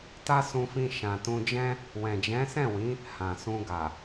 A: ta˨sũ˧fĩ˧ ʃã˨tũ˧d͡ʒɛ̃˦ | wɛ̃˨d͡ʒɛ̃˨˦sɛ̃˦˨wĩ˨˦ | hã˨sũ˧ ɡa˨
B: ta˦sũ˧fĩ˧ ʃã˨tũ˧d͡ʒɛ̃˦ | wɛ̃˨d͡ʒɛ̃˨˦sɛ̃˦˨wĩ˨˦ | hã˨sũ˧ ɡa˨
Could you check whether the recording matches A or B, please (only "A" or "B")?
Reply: B